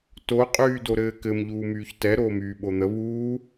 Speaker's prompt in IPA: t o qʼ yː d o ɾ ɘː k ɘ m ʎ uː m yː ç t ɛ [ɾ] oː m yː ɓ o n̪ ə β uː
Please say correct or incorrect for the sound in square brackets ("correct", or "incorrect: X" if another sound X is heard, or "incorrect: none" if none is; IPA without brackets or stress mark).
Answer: correct